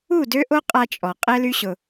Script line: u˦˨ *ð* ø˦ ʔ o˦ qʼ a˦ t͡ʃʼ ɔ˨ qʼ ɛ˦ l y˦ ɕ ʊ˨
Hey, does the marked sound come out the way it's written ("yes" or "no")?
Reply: no